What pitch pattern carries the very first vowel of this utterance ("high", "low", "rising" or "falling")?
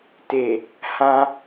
low